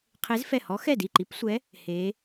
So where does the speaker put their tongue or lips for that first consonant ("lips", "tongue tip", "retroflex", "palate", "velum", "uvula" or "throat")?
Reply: uvula